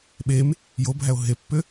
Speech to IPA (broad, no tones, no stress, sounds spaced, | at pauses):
ɓ e m | j o bʱ æ o̯ ɦ e pː ʏ